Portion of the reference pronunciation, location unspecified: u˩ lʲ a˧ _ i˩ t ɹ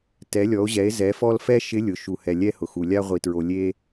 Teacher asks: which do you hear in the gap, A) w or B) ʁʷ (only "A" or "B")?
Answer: B